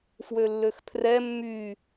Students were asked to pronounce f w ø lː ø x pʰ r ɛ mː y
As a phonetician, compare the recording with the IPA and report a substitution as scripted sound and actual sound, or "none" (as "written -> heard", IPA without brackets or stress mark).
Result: none